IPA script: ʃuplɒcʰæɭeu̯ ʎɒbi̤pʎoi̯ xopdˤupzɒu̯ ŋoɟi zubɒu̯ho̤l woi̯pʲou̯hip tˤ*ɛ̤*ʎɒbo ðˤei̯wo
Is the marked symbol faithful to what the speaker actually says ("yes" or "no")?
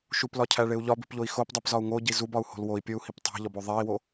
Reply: no